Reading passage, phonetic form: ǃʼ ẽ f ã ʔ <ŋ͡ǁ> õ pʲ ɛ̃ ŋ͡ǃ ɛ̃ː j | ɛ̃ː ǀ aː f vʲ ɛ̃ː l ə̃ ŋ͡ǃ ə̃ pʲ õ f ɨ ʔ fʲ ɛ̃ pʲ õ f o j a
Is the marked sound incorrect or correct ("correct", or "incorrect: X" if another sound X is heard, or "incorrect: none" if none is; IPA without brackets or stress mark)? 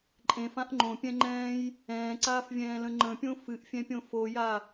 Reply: incorrect: ŋ͡ǃ